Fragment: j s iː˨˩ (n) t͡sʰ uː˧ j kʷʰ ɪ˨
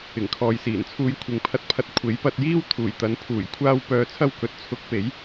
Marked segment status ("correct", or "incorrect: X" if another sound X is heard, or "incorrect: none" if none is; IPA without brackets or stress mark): correct